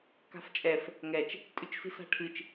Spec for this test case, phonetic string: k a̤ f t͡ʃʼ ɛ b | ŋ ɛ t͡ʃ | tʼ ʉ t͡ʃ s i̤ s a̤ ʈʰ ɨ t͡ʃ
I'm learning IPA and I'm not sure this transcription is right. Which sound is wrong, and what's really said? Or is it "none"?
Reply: b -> f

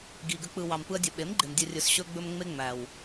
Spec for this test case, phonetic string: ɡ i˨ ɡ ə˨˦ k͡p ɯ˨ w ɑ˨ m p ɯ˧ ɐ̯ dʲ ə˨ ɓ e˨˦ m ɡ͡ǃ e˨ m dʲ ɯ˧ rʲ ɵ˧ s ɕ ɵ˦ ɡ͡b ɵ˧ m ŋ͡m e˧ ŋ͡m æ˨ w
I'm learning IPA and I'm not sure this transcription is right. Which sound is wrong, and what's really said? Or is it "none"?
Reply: none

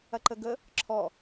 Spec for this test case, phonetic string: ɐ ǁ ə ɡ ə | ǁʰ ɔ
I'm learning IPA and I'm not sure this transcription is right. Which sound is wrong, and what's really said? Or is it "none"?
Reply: ǁ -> ǃ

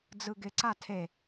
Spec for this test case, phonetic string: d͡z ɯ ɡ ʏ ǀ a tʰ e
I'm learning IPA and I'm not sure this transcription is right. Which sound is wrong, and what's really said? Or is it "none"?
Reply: ʏ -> ɪ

